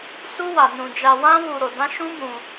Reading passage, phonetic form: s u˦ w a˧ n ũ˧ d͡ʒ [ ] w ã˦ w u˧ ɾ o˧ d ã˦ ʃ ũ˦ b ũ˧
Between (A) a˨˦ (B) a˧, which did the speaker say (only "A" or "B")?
B